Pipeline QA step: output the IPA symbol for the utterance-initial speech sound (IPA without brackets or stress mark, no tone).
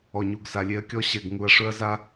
ɔ